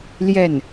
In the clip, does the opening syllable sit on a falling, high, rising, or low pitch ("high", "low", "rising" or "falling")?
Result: falling